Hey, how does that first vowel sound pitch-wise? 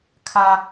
high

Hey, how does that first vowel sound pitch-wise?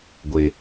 low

